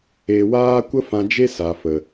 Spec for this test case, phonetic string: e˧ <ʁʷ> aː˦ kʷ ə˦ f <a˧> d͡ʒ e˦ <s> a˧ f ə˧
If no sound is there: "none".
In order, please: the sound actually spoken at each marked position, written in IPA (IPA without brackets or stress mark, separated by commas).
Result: w, ã˧, s